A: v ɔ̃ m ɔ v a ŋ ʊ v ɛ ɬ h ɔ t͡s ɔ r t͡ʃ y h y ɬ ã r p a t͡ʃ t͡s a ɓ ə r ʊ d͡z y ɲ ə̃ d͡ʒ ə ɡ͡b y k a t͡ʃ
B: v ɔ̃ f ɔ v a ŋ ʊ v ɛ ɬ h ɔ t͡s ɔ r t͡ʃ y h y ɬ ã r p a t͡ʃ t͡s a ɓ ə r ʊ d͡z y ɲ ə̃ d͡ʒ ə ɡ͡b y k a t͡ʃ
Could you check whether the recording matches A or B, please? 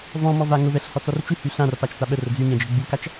A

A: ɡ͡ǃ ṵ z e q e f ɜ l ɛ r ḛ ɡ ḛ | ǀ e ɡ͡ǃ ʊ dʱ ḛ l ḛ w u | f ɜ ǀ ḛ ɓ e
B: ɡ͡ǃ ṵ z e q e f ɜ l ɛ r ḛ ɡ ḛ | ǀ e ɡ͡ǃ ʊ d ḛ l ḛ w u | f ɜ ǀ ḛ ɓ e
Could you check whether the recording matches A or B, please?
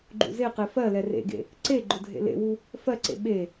A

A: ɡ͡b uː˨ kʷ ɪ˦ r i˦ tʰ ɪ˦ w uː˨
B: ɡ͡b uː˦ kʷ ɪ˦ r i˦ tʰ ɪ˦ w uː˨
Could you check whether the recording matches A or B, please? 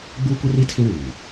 B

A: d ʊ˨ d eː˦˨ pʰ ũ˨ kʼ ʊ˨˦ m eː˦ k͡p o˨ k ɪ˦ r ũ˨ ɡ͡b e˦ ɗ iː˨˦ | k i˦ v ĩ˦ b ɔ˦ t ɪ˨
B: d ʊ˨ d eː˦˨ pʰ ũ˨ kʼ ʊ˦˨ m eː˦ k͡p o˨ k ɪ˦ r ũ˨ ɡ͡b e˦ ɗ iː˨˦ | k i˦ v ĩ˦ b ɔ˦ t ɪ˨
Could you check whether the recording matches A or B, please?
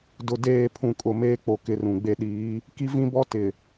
B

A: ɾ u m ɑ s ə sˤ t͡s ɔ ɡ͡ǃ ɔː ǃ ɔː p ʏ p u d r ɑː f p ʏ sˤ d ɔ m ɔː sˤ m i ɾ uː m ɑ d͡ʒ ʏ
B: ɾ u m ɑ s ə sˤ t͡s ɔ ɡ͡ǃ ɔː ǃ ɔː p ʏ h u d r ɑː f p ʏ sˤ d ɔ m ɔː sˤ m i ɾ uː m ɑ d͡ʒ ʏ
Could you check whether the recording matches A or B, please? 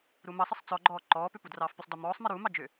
A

